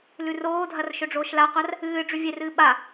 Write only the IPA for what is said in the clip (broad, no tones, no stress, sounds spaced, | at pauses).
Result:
l ʉ r oː dʱ ɐ r ʃ ɵ ɖ͡ʐ oː ʃ l a qʷ a r | ɨː ɖ͡ʐ ʉ vʲ e r ɨː ɓ a